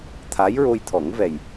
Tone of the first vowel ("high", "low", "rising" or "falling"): rising